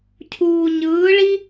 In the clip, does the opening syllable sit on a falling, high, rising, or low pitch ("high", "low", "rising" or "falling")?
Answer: low